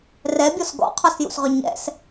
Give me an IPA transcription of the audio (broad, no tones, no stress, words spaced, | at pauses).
rɛbʲɔs ɡɔ̰qʰɔsjṵsʁʏ ɲɛ̰s